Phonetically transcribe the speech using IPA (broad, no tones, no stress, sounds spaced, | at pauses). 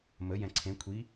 m ə j ɛ̃ ǀʰ ẽ kʷʰ i